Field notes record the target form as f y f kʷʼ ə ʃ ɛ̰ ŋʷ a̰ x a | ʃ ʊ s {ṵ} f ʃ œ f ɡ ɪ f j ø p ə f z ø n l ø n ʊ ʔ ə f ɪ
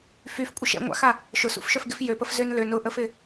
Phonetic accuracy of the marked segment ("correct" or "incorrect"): correct